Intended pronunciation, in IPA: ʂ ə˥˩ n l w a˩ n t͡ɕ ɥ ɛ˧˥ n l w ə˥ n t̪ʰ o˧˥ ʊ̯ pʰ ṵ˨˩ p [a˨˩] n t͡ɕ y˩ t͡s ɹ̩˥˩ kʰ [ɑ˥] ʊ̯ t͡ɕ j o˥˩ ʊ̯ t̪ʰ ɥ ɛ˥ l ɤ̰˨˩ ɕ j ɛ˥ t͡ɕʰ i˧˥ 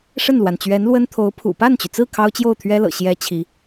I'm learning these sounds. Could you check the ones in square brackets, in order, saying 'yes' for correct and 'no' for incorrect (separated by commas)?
no, yes